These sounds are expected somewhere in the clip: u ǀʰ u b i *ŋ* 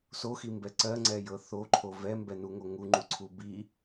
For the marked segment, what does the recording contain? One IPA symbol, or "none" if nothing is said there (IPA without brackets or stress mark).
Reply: none